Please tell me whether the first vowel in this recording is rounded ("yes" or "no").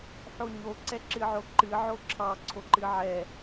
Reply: yes